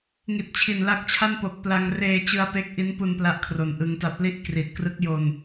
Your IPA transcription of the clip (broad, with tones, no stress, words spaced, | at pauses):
ŋi˨˩t̚t͡ɕʰi˨˩nla˦˥k̚t͡ɕʰa˥˩n po˨˩k̚pla˧ŋ reː˧t͡ɕɯ˧a̯ pe˦˥k̚ʔi˦˥npu˧n pla˦˥ʔkʰro˨˩nʔɯ˧ŋta˦˥p̚ li˦˥ʔ kri˨˩t̚krɯ˦˥k̚jo˧n